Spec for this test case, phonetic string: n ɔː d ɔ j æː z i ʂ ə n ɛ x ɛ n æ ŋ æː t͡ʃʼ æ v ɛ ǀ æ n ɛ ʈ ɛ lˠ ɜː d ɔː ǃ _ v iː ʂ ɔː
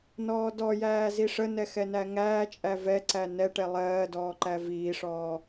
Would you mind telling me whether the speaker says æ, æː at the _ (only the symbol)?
æ